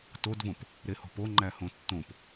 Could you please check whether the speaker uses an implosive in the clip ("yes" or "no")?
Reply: no